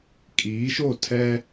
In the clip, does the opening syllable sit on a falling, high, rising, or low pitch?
rising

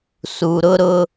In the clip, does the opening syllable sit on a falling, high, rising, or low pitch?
low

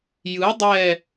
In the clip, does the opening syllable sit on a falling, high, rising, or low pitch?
rising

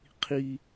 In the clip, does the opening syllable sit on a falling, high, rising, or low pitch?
high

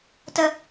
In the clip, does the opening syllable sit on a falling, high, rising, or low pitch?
high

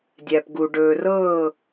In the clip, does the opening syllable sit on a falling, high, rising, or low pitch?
low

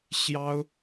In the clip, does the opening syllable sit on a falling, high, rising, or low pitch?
high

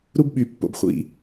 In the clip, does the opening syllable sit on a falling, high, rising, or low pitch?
high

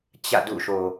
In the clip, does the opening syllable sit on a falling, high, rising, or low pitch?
falling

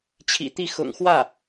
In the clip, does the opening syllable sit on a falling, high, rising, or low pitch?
low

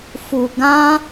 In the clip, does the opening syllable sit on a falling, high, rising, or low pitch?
low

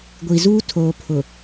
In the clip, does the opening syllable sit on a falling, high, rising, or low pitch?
low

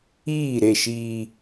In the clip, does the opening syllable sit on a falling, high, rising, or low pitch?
falling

